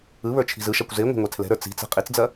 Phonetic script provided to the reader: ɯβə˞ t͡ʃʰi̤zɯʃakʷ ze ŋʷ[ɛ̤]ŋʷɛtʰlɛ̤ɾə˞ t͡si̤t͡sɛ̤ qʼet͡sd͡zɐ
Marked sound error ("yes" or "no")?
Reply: no